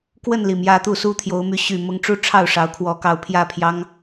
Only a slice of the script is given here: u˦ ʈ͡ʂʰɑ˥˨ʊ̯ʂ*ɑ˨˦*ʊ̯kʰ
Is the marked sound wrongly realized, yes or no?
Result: no